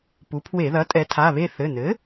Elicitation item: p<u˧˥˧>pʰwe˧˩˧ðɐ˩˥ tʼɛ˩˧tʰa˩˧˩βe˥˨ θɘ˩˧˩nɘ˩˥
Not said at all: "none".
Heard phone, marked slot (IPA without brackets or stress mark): u˩˧